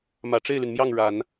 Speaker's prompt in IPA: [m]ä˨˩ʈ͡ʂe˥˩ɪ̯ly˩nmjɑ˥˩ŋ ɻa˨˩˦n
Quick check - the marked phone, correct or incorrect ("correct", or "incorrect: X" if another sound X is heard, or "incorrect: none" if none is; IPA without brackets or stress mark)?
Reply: correct